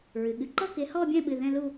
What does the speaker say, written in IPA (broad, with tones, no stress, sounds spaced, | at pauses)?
ɹ ɨ˩ ɠ ɨ˨˦ ǃ ɔ˥˧ k ɪ˨˦ h ɔ˥˧ bʲ ɛ̃˥˧ ɓ ɨ˩˧˩ ð ɛ̃˥˧ l u˥˧